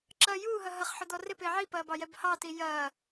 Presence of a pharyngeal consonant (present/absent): present